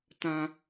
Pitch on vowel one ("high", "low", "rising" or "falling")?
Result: high